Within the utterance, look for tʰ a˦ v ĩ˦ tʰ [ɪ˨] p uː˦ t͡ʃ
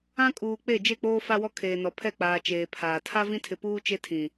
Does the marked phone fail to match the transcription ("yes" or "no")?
no